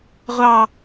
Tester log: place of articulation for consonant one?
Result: uvular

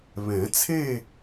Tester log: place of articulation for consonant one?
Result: labial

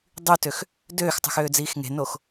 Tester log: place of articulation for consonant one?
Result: alveolar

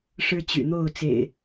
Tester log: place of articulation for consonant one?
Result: retroflex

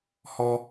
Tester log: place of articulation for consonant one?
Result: glottal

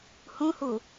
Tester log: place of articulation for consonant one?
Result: glottal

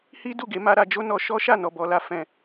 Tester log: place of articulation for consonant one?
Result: glottal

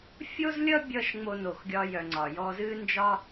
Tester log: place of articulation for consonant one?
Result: labial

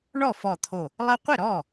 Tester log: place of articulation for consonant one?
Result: retroflex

